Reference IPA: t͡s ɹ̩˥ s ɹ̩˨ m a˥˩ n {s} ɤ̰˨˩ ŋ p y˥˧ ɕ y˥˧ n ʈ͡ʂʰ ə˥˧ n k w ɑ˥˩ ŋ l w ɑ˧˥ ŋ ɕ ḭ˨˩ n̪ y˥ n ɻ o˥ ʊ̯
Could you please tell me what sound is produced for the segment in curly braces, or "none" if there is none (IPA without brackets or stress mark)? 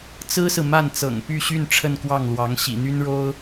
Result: t͡s